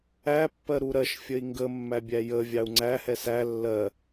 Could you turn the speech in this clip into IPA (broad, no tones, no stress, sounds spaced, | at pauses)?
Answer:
æ pː ɜ ɾ u ɾ ɜ ʃ fʲ ə i̯ ŋ ɡ ə mː æ bʲ æ j ə vʲ ɑ u̯ ŋ͡ǀ æ h ɛ s æ lː ɜ